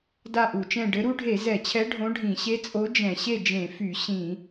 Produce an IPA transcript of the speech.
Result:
da˥˨ʔu˧˩˧t͡ʃɛ̃˥˨ ɖɘ˧˥ɾu˧˥ɖʱe˧˩˧ zɛ˧˩˧t͡ɕʰɛ˧˥ ɖʱõ˧˥ɖʱĩ˧˩˧ ɕe˧˥t͡sʼo˧˥ d͡ʒɛ̃˧˩˧ɕe˥˨d͡ʒẽ˧˩˧fy˧˩˧ ɕĩ˧˩˧

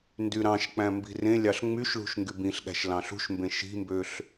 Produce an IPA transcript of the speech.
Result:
ndyɾɑ̃ʃk͡pæ̃ mbi̤rẽlʲɑɬ ŋ͡myʃɭṳʃ ŋɡybĩɬɠæ̤ʃ lɑ̃ɬṳʃmbẽ ʃi̤mbøɬ

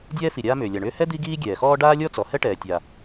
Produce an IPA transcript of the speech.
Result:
dʲɛː˥fi˩ ɾʲaː˥mʏː˩ lʲa˩ɳʏː˥ hɛ˥ d̪i˥ɡiː˥ɡʲɛː˩xɔː˥ ɖaː˥lʲɔ˥t͡sɔ˩ hɛ˥ʈɛː˩tʲa˩

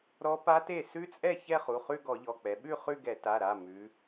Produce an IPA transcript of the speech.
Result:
ɾɔ˦˥ pa˦˥te˥˩ sʉ˦˥t͡sʼɛ˥˩ çɛ˥˧χu˩˧˩χʉ˥˧ ɡɔ˧˩˧ʎɔ˩˧˩k͡pɛ˩˧ ɓʉ˥˩ χʉ˥˧ɡɛ˧˩˧ ta˩˧˩ɾa˩˧˩ mʉ˩˧

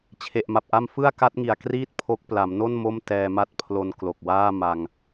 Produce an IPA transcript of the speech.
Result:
t͡ɕʰe˨˩ʔma˨˩p̚ʔa˥˩m fɯ˥˩a̯ka˦˥t̚ŋi˨˩a̯kriː˥˩t̚ pʰo˦˥k̚ pla˩˦mno˥˩n mo˥˩m tɛː˧ma˥˩t̚ pʰlo˧nklo˨˩k̚waː˥˩ ma˧ŋ

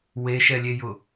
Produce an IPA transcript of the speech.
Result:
weʃɛlʲejʊ

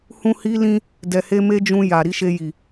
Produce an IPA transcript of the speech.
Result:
hũ˧ hi˦lĩ˦ | dɛ˨he˧me˦d͡ʒũ˧ ja˨ ɾi˨˦ʃe˧ji˨

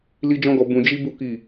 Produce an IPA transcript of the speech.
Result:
li˦d͡ʒɔ̃˦ɡɔ˧ bũ˧ d͡ʒi˦bu˦ ki˦˨

